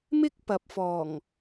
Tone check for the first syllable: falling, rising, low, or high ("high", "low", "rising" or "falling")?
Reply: high